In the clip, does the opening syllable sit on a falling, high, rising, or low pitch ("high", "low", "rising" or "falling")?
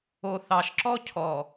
low